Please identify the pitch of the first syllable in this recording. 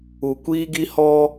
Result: low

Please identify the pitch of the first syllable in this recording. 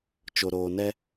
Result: low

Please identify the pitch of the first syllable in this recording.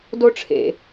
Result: high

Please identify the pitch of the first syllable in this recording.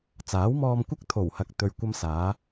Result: rising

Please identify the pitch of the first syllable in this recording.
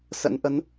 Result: rising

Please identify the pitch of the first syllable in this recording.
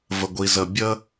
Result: low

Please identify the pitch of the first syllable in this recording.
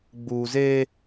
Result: low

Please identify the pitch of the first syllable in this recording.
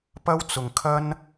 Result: high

